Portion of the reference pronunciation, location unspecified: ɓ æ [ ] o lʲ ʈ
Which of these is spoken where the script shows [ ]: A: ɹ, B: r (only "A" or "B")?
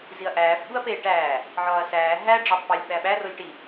B